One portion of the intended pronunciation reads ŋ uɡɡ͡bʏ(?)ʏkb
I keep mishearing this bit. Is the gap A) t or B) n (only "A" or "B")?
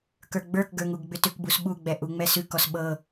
A